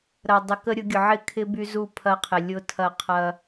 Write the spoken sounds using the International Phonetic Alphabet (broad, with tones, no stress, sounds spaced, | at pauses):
ɾ ɐ˨ dˤ ɪ˨ k ə˦ ɾʲ ʊ˨˦ ɡʲ ʊ˨ ʕ ɪ˦ kʰ ɪ˦ b y˦ z u˦˨ pʰ ɐ˦ qʰ ɪ˨ lʲ ʊ˦ tʰ ɐ˦˨ qʰ ɐ˦